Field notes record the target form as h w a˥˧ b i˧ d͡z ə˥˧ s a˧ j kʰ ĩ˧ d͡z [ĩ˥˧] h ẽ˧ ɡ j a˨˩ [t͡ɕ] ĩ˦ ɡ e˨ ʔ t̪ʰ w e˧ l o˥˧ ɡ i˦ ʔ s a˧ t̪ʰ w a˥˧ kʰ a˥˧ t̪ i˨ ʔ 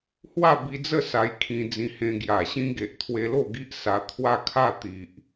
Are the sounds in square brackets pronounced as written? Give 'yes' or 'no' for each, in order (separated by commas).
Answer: no, no